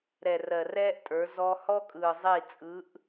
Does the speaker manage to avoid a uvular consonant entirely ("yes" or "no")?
yes